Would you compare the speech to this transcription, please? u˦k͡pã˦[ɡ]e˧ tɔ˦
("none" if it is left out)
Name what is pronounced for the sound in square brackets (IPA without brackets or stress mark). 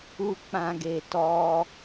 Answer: ɡ